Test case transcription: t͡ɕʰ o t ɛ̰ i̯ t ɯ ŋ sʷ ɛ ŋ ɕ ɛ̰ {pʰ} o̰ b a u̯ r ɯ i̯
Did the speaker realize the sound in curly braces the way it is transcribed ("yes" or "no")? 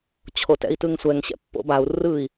no